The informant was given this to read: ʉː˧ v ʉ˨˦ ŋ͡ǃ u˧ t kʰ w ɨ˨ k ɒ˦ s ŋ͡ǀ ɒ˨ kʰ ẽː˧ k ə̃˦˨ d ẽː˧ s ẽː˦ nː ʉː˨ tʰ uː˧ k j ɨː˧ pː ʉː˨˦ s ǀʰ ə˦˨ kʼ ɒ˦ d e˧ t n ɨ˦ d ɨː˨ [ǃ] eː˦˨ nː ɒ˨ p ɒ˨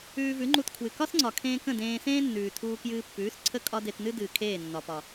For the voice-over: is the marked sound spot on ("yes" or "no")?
no